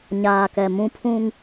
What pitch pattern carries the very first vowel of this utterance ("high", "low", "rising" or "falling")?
low